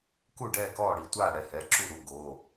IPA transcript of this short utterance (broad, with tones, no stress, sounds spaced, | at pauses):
k u˥˩ ɖ ɛː˥˩ k ɔː˥˩ ɽ i˥˩ tʷ aː˥˩ ɽ ɛ˥˩ h ɛ˩˧˩ ǁ u˥˩ ɾ u˩˧˩ ɡ oː˩˧˩